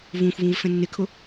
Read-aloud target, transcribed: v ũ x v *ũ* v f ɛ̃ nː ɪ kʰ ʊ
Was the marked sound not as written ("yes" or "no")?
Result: no